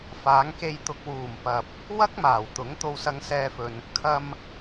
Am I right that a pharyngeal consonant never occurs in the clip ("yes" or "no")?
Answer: yes